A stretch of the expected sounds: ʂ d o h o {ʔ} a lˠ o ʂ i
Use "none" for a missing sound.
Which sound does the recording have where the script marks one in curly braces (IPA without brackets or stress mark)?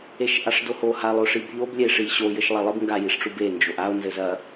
h